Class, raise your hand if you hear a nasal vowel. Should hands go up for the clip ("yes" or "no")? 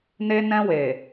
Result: yes